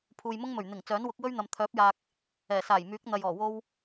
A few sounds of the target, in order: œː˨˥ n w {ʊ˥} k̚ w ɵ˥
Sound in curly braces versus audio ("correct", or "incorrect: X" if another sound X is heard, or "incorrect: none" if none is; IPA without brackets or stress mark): incorrect: ʊ˨˥